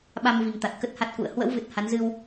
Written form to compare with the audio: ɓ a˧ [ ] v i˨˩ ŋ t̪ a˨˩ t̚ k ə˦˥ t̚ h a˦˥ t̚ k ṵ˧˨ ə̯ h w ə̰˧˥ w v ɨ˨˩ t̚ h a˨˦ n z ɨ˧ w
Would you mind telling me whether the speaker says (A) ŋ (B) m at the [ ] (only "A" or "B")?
B